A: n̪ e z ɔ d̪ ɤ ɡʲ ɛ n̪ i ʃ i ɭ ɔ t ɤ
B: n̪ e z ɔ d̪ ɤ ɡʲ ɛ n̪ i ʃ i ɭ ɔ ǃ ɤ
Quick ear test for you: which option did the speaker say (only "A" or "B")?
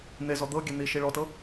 A